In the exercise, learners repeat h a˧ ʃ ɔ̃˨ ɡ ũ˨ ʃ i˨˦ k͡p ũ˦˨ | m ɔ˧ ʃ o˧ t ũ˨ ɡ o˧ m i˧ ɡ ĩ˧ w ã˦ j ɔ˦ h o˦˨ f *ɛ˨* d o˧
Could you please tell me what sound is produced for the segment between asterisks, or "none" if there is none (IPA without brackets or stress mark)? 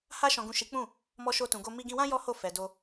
ɛ˨